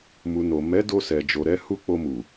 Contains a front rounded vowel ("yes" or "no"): no